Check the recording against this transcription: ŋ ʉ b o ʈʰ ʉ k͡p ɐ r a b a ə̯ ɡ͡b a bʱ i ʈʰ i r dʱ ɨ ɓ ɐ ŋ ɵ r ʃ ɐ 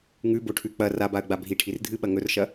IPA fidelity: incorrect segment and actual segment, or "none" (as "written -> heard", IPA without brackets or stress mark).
none